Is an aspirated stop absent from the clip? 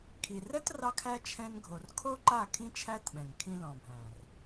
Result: no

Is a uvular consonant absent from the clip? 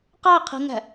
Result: no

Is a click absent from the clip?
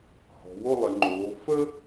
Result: no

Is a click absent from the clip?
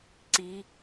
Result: no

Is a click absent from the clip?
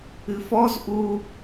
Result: yes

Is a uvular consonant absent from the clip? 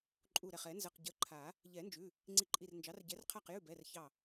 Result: no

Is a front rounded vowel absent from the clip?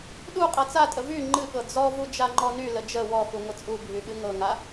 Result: no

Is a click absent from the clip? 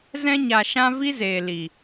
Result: yes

